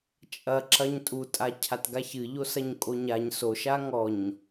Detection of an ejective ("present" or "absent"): present